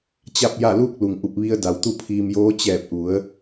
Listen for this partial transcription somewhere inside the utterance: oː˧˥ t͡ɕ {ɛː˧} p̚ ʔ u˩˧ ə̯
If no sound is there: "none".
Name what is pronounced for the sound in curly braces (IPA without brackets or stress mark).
ɛː˧˩